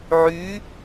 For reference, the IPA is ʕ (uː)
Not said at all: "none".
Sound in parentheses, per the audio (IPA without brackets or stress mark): yː